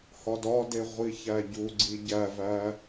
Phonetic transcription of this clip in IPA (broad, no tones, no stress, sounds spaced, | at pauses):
h ɒ d ɒ d e ʁʷ i ç æ ɟ u ɡ͡ǀ i ɟ æ v æ